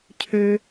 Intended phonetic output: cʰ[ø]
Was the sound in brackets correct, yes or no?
yes